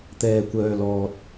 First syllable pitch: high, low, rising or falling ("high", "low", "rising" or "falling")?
low